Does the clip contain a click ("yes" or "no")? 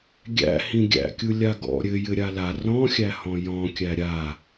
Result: no